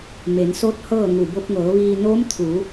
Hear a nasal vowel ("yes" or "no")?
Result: no